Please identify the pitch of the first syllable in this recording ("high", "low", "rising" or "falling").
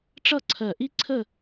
falling